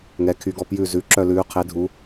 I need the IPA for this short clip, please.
ŋ ɛ˩˧ kʰ y˩˧ ɡ ɔ˨˩ p j ʉ˨˩ z ʉ˩˧ ǁ œ˨˩ l ʉː˩˧ qʰ e˩˧ dʱ u˩˧

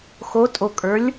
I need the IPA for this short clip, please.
x o tʼ o kʼ ə˞ lʲ

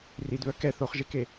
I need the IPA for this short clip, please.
r i d β œ k ɛ θ o χ ʒ e k e

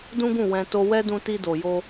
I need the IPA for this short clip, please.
d ũ˦ ɡ ũ˦˨ w ɛ̃˧ t o˧ w ɛ˦ d ũ˧ t i˧ d o˨ j o˧

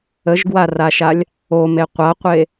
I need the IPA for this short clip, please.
ə ʒ ɡ w a r a ʃ a lʲ | o m e qʷ a qʷ e

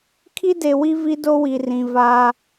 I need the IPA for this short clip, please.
kʰ i˦ d e˨ w i˦ v i˦ d o˦ w i˨ r ĩ˨ v a˦

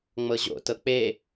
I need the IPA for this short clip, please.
ŋ͡m ɤ ʑ o̰ t ɤ k͡p e

